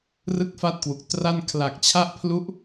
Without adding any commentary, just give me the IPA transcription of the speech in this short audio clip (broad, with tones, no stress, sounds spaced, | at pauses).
r ɯ˥˩ k̚ f a˥˩ t̚ k w u˨˩ k̚ t r a˥˩ n kʰ l a˨˩ k̚ t͡ɕʰ a˥˩ ʔ pʰ l u˦˥ ʔ